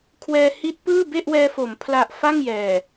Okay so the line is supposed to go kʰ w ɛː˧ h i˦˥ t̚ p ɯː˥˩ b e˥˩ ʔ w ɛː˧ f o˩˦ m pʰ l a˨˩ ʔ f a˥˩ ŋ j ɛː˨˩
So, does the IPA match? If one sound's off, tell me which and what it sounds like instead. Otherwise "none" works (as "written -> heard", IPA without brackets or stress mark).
none